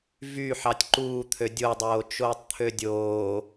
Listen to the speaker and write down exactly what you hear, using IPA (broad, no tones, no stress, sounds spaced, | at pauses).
v y ħ ɑ tʲ ǃ uː t̪ʰ ø dʲ o dˤ oː t͡ʃ oː tˤ t̪ʰ ø dʲ oː